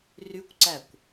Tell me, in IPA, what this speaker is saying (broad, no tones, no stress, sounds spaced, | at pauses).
r y kʷ ǀ æ kʷ